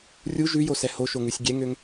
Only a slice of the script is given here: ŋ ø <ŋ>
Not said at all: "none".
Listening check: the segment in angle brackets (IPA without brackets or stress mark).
ŋ